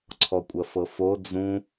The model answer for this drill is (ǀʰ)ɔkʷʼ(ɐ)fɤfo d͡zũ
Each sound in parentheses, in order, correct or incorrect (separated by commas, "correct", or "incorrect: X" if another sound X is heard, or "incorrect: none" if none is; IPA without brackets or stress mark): correct, correct